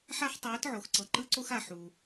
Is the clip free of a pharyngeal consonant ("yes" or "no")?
no